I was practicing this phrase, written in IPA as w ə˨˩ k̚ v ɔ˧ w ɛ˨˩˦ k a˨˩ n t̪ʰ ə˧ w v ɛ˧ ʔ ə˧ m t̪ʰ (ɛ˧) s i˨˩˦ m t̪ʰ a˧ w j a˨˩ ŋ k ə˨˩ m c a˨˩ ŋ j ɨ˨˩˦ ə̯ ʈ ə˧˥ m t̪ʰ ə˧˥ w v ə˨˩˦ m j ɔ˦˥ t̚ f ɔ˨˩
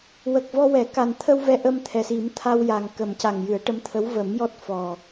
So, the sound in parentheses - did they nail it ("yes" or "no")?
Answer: no